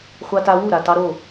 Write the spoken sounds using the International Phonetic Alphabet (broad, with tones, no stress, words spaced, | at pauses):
χʷa˧ta˧ wu˦˨ɾa˨ tɑ˧ɾo˦˨